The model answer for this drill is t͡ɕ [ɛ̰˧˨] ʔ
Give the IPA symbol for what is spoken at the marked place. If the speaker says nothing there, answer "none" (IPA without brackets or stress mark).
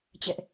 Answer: ɛ̰˧˨